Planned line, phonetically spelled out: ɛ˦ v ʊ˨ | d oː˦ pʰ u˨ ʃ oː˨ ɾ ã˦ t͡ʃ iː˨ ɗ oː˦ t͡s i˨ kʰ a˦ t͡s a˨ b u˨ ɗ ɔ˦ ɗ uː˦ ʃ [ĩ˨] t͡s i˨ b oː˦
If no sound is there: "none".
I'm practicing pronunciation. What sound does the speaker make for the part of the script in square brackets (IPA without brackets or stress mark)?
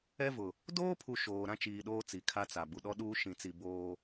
ĩ˨